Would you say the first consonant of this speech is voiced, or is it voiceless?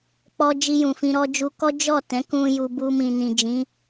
voiceless